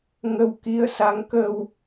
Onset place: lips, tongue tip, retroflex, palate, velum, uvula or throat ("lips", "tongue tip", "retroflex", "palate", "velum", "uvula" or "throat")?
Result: velum